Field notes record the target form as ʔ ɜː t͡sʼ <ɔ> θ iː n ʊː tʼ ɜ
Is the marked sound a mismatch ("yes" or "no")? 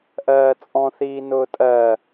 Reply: yes